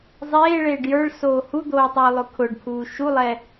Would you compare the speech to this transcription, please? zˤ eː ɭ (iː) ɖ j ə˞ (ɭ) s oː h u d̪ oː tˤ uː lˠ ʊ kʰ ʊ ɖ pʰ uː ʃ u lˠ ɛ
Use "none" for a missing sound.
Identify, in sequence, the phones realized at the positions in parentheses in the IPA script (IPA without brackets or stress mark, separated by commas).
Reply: eː, ɭ